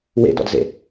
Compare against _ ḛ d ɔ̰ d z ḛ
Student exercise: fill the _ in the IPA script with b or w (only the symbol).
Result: w